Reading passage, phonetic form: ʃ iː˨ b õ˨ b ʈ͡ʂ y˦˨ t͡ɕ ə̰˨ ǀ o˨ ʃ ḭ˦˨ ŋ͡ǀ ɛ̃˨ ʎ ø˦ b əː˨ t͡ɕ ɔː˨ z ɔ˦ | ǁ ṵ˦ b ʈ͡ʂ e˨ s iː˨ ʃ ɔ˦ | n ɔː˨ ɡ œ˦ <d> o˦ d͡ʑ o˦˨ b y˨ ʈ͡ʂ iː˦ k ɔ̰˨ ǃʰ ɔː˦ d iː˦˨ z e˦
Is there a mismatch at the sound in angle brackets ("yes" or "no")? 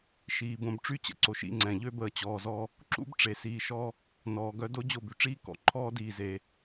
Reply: no